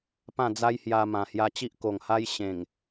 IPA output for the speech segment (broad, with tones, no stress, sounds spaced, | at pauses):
p ã˥˧ d͡z a˦ j h j a˧ m ã˨˩ h j a˧ t͡ɕ i˦ ʔ k o˨˩ ŋ h a˦ j ɕ ẽ˨˩ ŋ